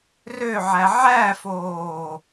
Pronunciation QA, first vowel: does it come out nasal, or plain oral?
oral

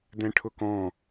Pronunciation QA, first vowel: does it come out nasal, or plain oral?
nasal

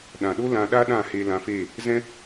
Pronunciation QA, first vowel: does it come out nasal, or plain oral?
nasal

